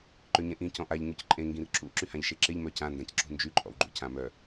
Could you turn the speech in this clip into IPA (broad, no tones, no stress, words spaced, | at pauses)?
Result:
ǃøɲẽʔĩ cɔ̃ʔaʎ ŋycǃʼẽ ŋɡĩrǁṵ ǁyhãʎʃeǁeʎ mœcã ndãcǁṳnd͡ʒy ǃʼɔ̰wɡ͡ǃṵ cʰãmœ